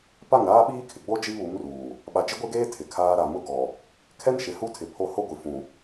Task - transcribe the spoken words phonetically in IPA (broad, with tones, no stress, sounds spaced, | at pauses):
p a˦˨ ŋ ɾ aː˦ ɓ iː˦ kʰ ɪ˨ ɡ͡b o˦ d͡ʒ i˦ β u˨˦ m r uː˨ | ɓ a˨ d͡ʒ ɪ˦ ɡʷ e˦ ɡ eː˦ tʰ ɪ˨ kʰ aː˦ ɾ a˨ m ʊ˦ ɡ ɔ˨ | kʰ ɛ˦ n ʃ ɪ˨ h u˦ tʰ ɪ˨ pʰ o˦ h o˦ ɡʷ i˨ f ũ˨